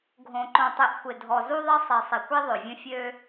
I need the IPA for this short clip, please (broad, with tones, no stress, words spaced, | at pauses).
ɡʱõ˨ǃõ˨tˤi˨ʔxʷɪ˨ dʱɔ˨zu˦ðˤɪ˦ sˤi˨sˤi˨kʷ i˦ðˤø˨vʲə̃˦ fʲø˦